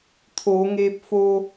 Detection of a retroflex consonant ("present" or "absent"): absent